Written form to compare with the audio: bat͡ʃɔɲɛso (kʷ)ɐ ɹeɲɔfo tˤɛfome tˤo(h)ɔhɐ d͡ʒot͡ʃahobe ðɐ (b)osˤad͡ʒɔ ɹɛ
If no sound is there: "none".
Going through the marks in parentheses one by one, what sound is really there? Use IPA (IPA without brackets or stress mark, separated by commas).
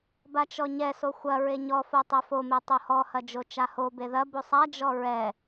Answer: xʷ, h, b